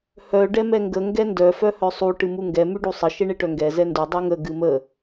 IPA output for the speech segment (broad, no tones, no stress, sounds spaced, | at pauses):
h œ ɖ ɛ m ɛ ŋ ɡ ə ŋ ɡ ɛ n d œ f œ h œ sˤ u ʈ ɨ m u ŋ ɡ ɛ m ʉ ɖ u sˤ ə ʃ e ɳ e ʈ œ ŋ ɡ ɛ z ɛ n d u dˤ ʉ ŋ ə ɡ ɨ m ə